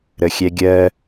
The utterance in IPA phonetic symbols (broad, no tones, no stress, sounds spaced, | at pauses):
ɾ ə xʲ ɛ ɡʲ ɜ